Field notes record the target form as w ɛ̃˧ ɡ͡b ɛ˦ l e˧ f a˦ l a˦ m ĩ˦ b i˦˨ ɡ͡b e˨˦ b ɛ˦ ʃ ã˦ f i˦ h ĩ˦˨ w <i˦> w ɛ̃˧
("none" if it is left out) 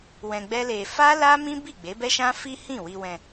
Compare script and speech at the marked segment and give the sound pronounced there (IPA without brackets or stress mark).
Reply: i˧